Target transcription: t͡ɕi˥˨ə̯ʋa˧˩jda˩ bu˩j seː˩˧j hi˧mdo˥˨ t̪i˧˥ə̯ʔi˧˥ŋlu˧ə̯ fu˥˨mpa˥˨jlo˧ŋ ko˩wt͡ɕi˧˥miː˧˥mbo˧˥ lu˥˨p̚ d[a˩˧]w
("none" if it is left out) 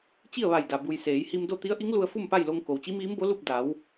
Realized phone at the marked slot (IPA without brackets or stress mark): a˩˧